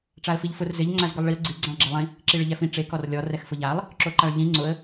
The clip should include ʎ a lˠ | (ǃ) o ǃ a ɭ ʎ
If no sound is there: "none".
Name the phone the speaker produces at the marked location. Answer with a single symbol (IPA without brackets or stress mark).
ǁ